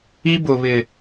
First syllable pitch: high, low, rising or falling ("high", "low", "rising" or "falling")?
high